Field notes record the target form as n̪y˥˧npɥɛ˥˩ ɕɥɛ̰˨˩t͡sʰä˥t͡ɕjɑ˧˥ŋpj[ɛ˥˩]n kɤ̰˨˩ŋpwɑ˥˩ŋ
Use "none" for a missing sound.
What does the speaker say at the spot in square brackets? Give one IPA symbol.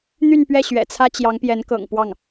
ɛ˧˥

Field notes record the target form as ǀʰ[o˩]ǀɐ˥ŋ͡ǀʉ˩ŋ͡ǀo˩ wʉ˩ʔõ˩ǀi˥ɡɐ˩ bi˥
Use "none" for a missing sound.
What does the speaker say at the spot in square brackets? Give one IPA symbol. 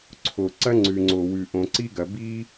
o˩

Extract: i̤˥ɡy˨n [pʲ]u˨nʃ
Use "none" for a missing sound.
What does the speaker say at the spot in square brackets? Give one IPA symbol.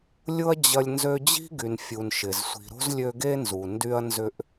fʲ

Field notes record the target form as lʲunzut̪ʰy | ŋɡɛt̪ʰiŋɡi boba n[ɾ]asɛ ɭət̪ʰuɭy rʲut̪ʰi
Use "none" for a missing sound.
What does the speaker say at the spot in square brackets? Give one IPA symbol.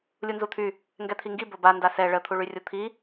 d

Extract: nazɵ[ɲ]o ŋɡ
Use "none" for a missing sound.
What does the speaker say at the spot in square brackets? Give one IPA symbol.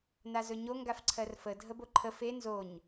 ɲ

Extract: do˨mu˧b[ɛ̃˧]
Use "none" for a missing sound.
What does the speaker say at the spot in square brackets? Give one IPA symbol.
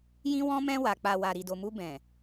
ɛ̃˨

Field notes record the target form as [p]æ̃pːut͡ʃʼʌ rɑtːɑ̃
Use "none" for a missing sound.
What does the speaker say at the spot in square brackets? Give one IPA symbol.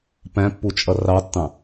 p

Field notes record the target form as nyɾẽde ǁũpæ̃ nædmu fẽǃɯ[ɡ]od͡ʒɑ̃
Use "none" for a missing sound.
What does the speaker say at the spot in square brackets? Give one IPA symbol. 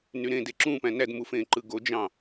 ɡ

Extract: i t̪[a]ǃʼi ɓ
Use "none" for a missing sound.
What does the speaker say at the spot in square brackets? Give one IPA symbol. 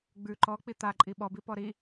a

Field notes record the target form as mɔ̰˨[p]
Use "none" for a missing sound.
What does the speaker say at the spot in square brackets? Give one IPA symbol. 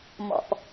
p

